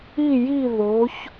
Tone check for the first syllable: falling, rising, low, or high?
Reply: falling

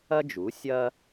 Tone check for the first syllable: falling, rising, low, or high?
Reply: high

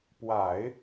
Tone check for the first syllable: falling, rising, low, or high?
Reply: low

